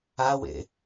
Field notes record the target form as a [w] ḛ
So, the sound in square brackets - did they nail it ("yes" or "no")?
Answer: yes